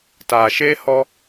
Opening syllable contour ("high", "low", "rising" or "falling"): low